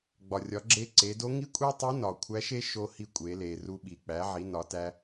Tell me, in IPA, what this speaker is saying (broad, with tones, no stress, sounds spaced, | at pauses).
ɡ͡b ɒ˩ rʲ ɒ˩˧ ɡ͡ǁ e˧ ǀ e˩˧ d o˧˥ ŋ i˥ kʷʼ e˥ tˤ i˧˥ n ɒ˩ kʷʰ æ˧˥ ʃ e˥ ʃ o˧ h i˧ kʷʼ e˩˧ l e˩ r u˧ ɓ i˩ k͡p æ˩˧ ʕ i˩˧ n ɒ˩˧ t æ˧